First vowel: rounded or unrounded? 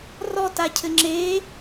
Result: rounded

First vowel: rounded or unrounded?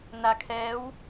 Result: unrounded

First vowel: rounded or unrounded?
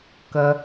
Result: unrounded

